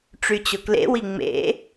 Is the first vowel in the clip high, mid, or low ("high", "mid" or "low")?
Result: high